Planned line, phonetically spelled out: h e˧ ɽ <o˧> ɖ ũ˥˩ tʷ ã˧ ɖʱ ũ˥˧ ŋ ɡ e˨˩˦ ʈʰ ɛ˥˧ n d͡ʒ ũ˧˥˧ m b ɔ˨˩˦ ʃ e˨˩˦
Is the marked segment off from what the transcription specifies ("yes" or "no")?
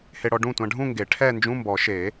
yes